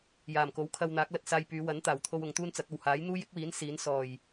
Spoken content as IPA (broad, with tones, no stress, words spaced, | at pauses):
jaː˨˩mko˨˥wkʰɐ˧w n̪aː˨˥k̚lɐ˧t̚ saː˧jpyː˨˧wɐ˨˥nt̪aː˨˩w t̪ʰo˧w ʊ˨ŋt̪uː˥nt͡sɐ˨˥k̚ɐ˨w haː˨˥j n̪uː˥jɪ˥k̚wiː˨˥n siː˨˥n sɔː˨˩j